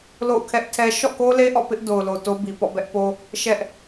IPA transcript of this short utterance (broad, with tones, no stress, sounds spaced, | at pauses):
l o̰˦˨ ʊ̯ kʰ ɛ˦ ʔ tʰ ɛ˦ ʃ ɔ̰˦˨ k o˦ l e˦ ʔ ɔ̰˦˨ p ɪ˦ ʔ d o˨ ʊ̯ l o˨ t o˦ b i˨ p ɔ̰˦˨ b ɛ˦ ʔ p o˦ | ʃ ɛ˦ ʔ